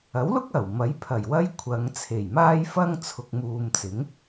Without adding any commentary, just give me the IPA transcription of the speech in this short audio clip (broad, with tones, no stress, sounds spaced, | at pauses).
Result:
ɐ˨˥ w l ʊ˥ k̚ ɐ˨˩ w m ɐ˨˥ j pʰ ɐ˨˩ j w ɐ˥ j kʷʰ ɐ˨˧ ŋ t͡sʰ e˨˩ j m aː˥ j f ɐ˥ ŋ t͡sʰ ʊ˨ k̚ m uː˨ m t͡s ɪ˨˥ ŋ